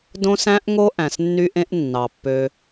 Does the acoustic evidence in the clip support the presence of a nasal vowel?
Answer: yes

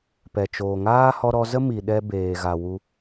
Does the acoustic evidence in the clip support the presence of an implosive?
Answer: yes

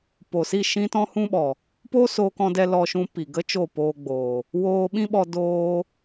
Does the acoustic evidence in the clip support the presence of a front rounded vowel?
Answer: no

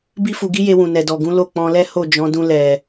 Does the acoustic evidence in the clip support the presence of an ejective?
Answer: no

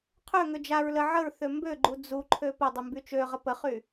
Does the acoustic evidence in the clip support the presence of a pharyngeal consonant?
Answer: yes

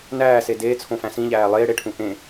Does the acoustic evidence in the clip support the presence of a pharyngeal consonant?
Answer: no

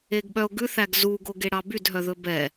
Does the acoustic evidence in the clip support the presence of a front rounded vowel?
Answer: yes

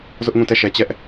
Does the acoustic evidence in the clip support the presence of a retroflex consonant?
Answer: no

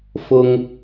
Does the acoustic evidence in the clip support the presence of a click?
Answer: no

